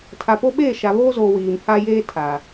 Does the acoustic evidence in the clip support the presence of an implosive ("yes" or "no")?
yes